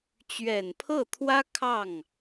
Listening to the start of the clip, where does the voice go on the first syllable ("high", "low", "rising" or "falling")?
low